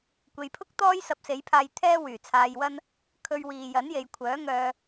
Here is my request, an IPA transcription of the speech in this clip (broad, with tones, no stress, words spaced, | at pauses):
kʷe˨jpʰʊ˥k̚ t̪ɔː˥jsɐ˧p̚se˨˥jpʰaː˧j t̪ʰɛː˥wyː˨˩t͡sʰaː˧jwɐ˥n | kʰɵ˧ɥ wiː˨ jɐ˨˥nje˨jkʷʰœː˨˥ŋœː˧